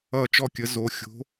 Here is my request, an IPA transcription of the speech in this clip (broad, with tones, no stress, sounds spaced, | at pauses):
ʌ˥˩ t͡ʃ ɔ˥˩ kʲ ə˨˥ z o˩˧˩ xʲ o̤˨˥